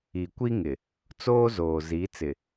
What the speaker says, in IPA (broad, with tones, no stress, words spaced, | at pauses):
i˨kʷi˦ŋɪ˨ | t͡soː˦zoː˨ zi˨˦t͡sɪ˨